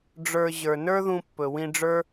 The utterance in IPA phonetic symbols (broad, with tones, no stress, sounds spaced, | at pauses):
ɖ͡ʐ ə˞˧ ʑ ə˞˨ n ə˞˦ ð ũ˧ pː ɵ˨ w ĩ˧ ɖ͡ʐ ə˞˦